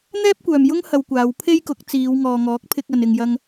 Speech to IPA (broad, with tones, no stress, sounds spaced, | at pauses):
n̪ ɛː˥ p̚ kʷ œː˨ m j ʊ˥ ŋ h ɐ˧ w kʷ aː˨˧ w pʰ e˥ j k ʊ˨˥ k̚ t͡s iː˨˧ w ŋ ɔː˨ ŋ ɔː˨˥ k̚ pʰ ɪ˧ k̚ ɐ˨ n ɪ˨ ŋ j ɐ˧ ŋ